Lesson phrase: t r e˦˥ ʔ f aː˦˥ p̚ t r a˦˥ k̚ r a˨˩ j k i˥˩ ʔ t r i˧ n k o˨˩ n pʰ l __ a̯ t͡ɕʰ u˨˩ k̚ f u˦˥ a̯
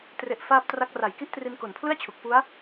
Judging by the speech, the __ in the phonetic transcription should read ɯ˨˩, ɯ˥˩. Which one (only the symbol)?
ɯ˥˩